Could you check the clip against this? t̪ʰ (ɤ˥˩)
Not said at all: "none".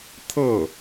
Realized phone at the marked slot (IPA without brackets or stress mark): ɤ˥˩